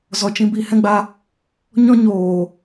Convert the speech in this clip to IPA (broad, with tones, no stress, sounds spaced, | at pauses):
z ɔ˨ t͡ʃ ĩ˧ b i˦˨ h ɛ̃˦ ɡ͡b a˧ | ɲ ɔ̃˦ ɲ oː˨